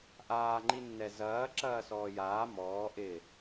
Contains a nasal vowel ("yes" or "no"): no